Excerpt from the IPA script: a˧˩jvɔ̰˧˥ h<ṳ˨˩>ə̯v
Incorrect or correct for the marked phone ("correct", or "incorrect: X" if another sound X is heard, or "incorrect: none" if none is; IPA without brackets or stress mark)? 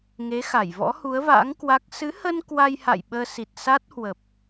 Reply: incorrect: u˨˦